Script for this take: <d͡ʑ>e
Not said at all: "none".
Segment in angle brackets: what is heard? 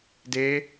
d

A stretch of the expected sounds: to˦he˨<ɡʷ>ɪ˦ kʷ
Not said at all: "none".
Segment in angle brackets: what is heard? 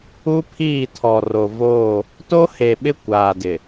ɓ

